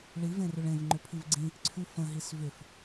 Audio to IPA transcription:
ɭivẽrʏɭ ẽvŋ͡ǃʏpʰiv ɡ͡ǀĩ | ǀʰʉfə̃ ɦisvʏf

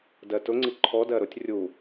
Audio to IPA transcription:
dɜtʊŋ͡ǀi ǃʰɔdɜ ɾʊtʲ rʲu

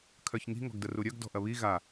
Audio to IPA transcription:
kʰœçŋi̤ ŋɔ̤ɡdəruɾʲœɡ dɔ̤ʔɐβi ɣa

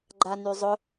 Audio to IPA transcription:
ɡ͡ǃanyzˤʊ

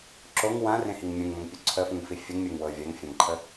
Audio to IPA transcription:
ǁoŋ wãrẽhiŋ mʲũŋmə̃ŋpʲu ǀʰəfũŋfi fʲəŋmʲɤŋwɤ vʲaŋfʲɑ̃ŋǃʰə

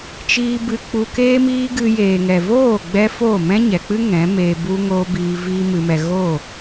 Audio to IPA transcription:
t͡ʃiː˧ bɨ˧k͡pu˧ keː˦miː˦ɡɨ˧ jeː˨ŋɛ˨voː˦˨ɡ͡bɛ˧ fo˦˨ mɛ̃˦ɲɛ˨k͡pɨ˦ ŋɛ̃˨˦meː˧ bu˦ ŋoː˦ biː˧ viː˦ mɨ˧mɛ˧ ɣo˦˨

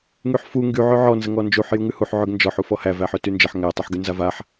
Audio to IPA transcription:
ŋyħfu ŋɡy ʕøʕɔ nzəŋɔnd͡ʒuħ juŋʉhuħ ʕøɡnd͡ʒɔħ ufɔhæ væħøtynd͡ʒəħ ŋæ tˤuħɡynzavaħ

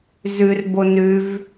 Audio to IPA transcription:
zʉrbo nʉv

